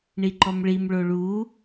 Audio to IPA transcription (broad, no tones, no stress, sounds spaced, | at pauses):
ɳ i ǃ ɔ m ɭ i m ɭ o ɭ u